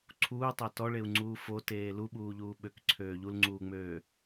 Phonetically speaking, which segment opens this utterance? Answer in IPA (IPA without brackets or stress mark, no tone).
ǀʰ